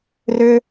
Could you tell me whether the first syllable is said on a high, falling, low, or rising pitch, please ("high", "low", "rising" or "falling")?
low